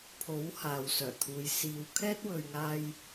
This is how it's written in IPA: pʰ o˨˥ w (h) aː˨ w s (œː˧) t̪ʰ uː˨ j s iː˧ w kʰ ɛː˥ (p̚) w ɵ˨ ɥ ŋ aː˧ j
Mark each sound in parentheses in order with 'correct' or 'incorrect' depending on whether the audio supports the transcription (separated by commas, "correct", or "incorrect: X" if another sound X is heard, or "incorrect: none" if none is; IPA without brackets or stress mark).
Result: correct, incorrect: œː˨˩, incorrect: t̚